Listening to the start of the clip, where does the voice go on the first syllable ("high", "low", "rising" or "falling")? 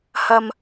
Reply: low